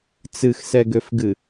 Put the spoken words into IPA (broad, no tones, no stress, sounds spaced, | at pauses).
t͡s ɨ x s ɛ ɡ ø f ɡ ɨ